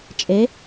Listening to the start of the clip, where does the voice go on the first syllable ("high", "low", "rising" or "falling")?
rising